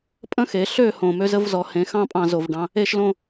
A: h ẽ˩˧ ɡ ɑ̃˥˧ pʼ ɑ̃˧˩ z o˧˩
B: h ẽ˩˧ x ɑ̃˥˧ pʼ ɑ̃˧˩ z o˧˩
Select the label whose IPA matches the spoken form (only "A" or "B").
B